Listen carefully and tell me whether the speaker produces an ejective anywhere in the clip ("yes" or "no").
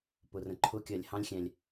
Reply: no